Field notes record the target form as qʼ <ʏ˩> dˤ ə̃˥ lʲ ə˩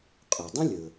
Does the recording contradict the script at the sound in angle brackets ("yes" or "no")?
no